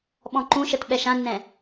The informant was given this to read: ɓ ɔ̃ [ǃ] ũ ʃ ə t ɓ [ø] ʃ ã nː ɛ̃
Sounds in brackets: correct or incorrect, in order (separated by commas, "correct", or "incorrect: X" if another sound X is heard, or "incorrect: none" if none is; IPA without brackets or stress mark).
correct, incorrect: ɛ